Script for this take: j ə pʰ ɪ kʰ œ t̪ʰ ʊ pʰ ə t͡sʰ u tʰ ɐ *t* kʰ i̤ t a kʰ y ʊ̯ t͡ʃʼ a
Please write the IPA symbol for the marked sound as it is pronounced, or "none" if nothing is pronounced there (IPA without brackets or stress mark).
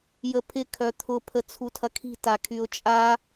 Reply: none